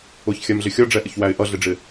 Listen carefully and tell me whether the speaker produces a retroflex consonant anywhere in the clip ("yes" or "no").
yes